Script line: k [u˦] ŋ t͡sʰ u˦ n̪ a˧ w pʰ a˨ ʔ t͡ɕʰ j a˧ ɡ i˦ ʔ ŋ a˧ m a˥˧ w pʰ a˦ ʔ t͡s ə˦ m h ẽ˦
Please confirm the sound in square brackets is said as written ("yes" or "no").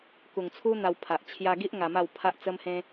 no